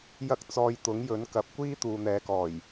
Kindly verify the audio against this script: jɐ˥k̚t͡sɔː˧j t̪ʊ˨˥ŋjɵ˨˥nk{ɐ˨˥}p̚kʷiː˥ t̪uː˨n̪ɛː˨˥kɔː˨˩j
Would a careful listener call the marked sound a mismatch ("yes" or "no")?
no